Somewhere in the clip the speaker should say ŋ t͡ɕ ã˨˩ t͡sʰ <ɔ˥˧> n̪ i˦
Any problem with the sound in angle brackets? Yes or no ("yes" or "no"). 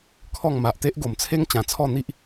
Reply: no